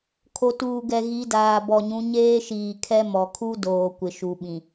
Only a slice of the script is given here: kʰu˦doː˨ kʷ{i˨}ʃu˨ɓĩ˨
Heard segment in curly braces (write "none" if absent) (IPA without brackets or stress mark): ɪ˨